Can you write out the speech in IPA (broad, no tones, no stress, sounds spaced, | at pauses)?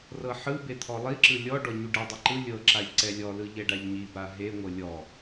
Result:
r ɤ ħ ɯ b e t̪ʰ ɔ lˠ i ǁ ɯ lʲ ɔ ɖ ɔ ɲ u ɖ ɛ dˤ i ǃ ɯ lʲ ɤ ǁ a ʎ ǀ ɛ lʲ ɔ l ɯ ʎ ɛ ɖ a ʎ ɲ i b a ɦ e ŋʷ ɤ lʲ ɔ